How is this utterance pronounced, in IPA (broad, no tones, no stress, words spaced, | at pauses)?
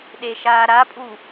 ɗeʃaːɾapʼu